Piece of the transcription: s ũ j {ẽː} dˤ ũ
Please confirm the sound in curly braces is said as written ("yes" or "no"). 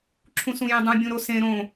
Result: no